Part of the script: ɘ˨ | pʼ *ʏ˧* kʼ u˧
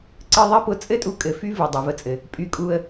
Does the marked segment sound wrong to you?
yes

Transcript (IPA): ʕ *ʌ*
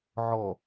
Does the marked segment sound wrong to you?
yes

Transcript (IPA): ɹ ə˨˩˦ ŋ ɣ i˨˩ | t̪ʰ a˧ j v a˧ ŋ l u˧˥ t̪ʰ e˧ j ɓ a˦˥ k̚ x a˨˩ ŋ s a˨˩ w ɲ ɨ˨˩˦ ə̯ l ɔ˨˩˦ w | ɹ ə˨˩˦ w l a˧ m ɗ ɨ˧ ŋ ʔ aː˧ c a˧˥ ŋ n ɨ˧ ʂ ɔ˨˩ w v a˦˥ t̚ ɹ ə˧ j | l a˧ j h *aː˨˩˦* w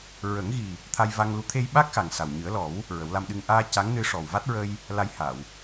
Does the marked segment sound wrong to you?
yes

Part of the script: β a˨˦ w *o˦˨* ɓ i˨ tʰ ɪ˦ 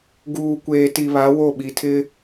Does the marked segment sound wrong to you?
no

